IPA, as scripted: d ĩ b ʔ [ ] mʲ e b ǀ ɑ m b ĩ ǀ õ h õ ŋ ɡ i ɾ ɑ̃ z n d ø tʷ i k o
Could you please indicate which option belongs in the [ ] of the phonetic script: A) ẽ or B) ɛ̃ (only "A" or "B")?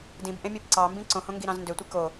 A